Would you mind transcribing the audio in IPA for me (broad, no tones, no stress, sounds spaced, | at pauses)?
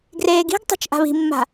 ɡ r eː ɡ i̤ ɡ tˤ e̤ t͡ʃ ʔ a̤ β i̤ mː a̤